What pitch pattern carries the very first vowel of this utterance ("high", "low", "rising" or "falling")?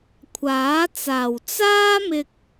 rising